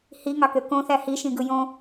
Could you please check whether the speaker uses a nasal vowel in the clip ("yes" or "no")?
yes